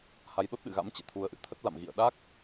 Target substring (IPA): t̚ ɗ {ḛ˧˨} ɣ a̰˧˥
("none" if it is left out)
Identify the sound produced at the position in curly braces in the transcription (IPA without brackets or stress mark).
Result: ɨ̰˧˨